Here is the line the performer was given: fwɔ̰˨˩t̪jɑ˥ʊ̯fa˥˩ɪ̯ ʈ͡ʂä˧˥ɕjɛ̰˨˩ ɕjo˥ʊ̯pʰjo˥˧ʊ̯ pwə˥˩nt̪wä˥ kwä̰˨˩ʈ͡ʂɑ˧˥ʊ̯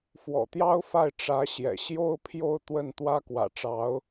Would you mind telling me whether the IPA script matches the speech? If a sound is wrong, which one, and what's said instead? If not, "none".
p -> t̪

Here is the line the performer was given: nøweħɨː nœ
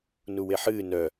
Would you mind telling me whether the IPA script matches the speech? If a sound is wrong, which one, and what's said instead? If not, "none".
ø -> u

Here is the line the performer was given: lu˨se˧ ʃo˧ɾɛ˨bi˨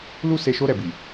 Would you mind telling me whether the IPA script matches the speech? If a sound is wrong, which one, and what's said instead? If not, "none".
u˨ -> u˦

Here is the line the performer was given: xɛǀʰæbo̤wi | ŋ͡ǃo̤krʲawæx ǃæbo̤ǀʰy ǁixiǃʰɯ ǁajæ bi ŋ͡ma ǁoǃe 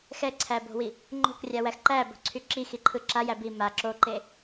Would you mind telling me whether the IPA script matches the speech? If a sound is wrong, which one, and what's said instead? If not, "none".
ŋ͡m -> m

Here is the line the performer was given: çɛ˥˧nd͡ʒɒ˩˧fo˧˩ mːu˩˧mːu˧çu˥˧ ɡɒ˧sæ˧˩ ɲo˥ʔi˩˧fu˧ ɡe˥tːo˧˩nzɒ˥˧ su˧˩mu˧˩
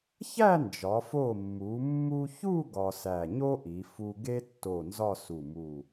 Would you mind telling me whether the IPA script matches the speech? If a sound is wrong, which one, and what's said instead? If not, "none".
ɛ˥˧ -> æ˥˧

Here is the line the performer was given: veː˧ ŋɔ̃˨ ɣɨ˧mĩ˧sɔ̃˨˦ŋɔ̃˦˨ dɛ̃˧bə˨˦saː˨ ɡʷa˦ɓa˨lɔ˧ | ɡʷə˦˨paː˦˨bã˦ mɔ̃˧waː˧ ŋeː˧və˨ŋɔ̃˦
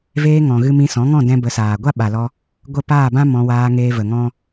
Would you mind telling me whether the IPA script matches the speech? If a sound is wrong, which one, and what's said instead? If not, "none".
none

